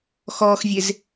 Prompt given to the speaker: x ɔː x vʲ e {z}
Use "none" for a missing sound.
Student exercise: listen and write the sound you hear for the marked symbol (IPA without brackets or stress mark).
z